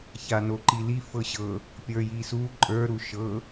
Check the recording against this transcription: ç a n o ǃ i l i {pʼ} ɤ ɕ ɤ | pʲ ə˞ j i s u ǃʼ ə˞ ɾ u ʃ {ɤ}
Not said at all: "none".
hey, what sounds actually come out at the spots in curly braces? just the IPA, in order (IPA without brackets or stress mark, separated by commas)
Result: f, ɤ